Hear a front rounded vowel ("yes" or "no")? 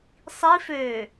yes